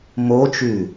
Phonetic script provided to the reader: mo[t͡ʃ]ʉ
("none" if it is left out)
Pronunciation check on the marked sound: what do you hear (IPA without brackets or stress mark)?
t͡ʃ